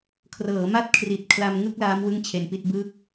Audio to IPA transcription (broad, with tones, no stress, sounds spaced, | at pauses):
kʰ r ɤː˩˦ m a˦˥ t̚ kʰ r i˨˩ t̚ kʰ l a˧ m ŋ ɯ˥˩ k̚ l aː˦˥ m w ɯ˥˩ ŋ t͡ɕʰ e˧ n p i˥˩ t̚ b ɯː˥˩ k̚